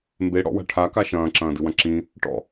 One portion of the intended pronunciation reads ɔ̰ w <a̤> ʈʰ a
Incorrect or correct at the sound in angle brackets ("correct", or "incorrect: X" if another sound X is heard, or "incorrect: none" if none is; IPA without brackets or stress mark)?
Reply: correct